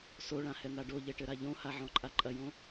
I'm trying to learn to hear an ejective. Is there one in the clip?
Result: yes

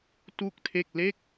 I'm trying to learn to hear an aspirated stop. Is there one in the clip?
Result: yes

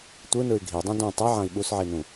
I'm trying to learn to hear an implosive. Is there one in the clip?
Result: yes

